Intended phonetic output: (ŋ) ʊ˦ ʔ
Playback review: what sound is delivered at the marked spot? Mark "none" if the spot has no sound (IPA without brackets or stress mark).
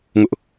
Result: ŋ